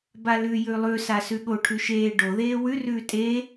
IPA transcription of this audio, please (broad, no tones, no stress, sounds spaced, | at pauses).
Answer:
b a l ʉ j ʉ lˠ ʉ s a s ʉ ɠ o ʈʰ ʉ ʃ eː ɖ o ð eː w ʉ r ʉː tʼ e